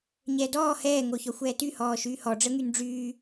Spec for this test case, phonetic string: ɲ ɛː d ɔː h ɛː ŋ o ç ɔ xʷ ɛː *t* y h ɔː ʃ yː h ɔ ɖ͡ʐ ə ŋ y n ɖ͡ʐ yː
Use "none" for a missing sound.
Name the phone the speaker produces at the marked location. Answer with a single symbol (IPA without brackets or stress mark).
t